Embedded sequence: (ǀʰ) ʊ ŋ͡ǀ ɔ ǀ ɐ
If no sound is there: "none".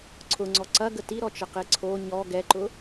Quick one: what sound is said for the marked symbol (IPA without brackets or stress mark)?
ǀʰ